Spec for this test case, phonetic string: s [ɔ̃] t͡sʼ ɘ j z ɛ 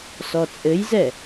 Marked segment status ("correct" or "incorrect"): incorrect